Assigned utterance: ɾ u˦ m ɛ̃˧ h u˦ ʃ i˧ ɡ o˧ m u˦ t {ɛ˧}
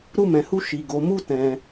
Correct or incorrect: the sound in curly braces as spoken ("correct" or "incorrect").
incorrect